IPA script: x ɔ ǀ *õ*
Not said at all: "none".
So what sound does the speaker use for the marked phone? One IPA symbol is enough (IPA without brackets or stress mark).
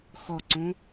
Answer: õ